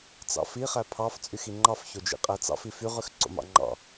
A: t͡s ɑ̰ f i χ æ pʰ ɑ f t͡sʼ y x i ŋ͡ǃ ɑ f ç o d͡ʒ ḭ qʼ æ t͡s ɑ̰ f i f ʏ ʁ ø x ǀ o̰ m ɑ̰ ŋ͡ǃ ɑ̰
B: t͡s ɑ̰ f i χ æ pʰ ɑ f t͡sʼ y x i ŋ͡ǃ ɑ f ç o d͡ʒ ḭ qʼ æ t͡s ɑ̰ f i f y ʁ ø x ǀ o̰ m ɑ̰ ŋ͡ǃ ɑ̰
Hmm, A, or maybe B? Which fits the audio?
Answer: B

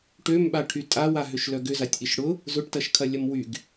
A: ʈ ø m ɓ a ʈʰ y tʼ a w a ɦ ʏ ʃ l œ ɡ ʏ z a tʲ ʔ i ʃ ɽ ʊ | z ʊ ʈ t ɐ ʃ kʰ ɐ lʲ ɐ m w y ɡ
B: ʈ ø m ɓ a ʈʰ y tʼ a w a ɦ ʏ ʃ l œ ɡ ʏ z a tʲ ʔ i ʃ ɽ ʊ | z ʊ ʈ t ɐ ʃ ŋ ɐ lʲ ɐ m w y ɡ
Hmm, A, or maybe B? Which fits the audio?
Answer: A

